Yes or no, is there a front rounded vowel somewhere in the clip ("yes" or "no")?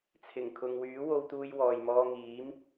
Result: yes